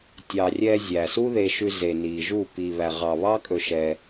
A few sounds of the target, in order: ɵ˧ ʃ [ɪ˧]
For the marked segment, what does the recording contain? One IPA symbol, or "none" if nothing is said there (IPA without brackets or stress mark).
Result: ɛ˧